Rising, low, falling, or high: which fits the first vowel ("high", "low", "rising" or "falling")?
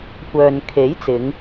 low